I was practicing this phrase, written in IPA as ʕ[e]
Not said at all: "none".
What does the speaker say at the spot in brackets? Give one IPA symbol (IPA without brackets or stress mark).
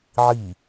i